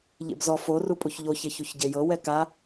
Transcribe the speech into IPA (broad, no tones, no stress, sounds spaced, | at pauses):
ʎ ḛ b z ɔ f o r u pʼ u ç ʎ o ç e ç u ç ɟ e j ɤ w ɛ k a